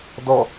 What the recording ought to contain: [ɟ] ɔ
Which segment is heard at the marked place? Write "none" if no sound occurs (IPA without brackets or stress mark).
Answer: d